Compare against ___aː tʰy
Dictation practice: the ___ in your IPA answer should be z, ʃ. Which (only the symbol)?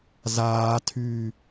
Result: z